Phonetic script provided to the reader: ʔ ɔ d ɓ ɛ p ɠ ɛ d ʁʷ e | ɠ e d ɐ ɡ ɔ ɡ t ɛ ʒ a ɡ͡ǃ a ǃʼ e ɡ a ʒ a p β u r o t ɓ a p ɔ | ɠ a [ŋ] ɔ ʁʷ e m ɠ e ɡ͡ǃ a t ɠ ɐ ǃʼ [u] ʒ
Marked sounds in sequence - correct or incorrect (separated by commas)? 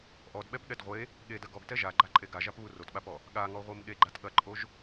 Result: correct, incorrect